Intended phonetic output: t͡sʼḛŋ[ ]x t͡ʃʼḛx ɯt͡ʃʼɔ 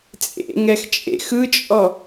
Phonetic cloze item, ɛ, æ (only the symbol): ɛ